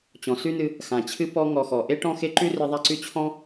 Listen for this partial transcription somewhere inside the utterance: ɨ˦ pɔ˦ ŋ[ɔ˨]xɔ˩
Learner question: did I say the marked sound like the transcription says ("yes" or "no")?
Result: yes